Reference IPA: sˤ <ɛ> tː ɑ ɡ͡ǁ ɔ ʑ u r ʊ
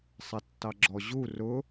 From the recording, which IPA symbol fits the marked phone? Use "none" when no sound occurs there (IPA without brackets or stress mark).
ɛ